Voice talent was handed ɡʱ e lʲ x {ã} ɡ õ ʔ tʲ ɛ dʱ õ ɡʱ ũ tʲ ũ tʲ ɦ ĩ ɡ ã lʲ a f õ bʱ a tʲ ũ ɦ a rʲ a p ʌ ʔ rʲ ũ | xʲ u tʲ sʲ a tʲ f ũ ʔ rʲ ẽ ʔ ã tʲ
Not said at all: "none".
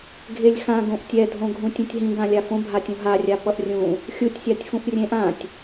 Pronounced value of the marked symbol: ã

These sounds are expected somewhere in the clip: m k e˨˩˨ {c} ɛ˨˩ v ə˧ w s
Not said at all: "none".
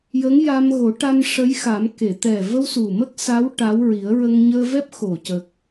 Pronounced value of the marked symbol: t̪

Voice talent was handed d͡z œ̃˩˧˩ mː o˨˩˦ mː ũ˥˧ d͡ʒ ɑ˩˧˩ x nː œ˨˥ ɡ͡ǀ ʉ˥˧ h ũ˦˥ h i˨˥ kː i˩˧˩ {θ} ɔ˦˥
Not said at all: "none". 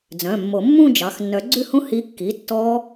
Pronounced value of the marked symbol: tː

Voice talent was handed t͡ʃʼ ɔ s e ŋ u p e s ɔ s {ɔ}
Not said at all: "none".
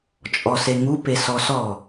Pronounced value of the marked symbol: ɔ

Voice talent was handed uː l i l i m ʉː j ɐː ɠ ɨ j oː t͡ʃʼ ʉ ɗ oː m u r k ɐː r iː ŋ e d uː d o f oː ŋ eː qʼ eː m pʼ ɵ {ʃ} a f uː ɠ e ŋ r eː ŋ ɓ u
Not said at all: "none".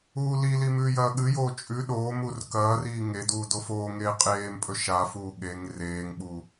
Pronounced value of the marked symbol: ʃ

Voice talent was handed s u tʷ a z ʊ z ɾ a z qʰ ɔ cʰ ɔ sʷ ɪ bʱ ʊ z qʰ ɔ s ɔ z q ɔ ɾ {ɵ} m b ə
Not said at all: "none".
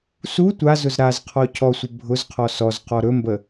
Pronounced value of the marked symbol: ɵ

